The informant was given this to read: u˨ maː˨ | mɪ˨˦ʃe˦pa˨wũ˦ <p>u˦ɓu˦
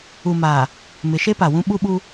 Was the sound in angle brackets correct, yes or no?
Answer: no